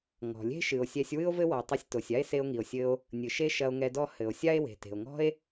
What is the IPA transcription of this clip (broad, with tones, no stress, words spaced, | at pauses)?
ŋɔ̤˩lʲe̤˥ ʃɨ˩o̯sʲɛ˧sʲ wɨ˥o̯vɘ˥wɔ˩ tˤɨ˧sʲto˩sʲa˥e̯ se˧o̯ŋi˩o̯sʲɘ˧o̯ | nʲɨ˩ʃe˥ ʃɐ˧o̯ŋɛ˧dɔ˥ hɘ˩o̯ sʲa˥e̯we̤˩ te̤˩o̯ŋɔ̤˥e̯